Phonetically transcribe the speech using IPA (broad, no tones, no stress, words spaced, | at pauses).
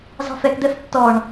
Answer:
zɑ̤fɛkd̪ɛf tːɔɳ